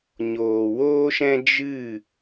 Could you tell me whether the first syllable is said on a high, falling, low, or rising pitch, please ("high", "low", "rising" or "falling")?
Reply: low